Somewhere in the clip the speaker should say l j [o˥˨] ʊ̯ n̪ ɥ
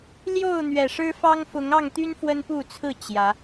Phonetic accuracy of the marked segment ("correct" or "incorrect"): correct